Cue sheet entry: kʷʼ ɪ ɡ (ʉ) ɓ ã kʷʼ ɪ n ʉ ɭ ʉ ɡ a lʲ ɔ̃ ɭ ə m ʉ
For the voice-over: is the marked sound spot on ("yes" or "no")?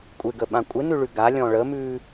no